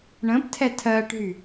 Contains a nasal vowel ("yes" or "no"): yes